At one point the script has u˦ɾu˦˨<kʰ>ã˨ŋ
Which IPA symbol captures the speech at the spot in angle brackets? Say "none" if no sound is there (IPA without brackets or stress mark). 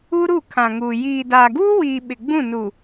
kʰ